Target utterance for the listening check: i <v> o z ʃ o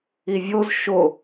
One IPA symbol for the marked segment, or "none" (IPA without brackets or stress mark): vʲ